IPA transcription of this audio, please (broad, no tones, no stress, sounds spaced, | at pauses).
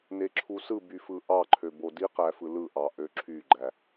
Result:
n e ǁʰ u s ɯ b y f ɯ ʔ ɑ ǃʰ ø b o d i q æ f ɯ l ɯ ʔ ɑ ʔ ø ǁʰ y ɡ͡ǃ æ